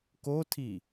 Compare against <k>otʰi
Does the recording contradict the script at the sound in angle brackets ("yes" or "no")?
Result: no